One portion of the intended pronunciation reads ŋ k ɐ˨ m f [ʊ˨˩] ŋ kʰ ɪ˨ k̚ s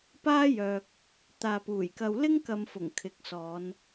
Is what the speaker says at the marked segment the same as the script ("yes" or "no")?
yes